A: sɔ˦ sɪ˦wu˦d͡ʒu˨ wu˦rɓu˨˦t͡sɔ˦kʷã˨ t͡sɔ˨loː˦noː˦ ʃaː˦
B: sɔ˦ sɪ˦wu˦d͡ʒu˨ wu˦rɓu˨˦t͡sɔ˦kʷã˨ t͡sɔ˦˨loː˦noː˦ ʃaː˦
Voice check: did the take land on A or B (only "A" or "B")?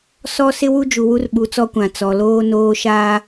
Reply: A